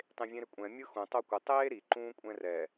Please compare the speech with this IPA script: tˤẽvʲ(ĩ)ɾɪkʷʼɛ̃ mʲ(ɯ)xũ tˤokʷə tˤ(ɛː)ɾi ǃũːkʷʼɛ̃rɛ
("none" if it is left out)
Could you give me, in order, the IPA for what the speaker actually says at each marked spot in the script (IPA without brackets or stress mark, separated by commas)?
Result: ẽ, ɯ, eː